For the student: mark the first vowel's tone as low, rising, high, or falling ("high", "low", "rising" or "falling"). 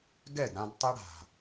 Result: falling